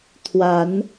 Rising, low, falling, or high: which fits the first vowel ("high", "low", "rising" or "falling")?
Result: rising